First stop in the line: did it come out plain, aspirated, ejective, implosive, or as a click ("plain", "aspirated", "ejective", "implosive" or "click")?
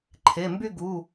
click